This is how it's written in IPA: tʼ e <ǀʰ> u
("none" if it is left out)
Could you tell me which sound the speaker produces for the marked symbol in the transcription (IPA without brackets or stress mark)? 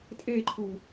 ǃʰ